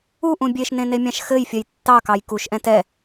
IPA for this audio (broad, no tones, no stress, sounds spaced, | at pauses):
u ʔ ũ bʲ e ʃ n ẽ n e mʲ ɑ̃ ʃ x ɘ j fʲ ɜ j tː ɑ k ɑ j k u ʃ ʔ ɛ̃ t ɛ